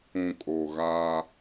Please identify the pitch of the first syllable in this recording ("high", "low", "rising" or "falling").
low